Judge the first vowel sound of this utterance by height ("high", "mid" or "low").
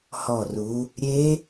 mid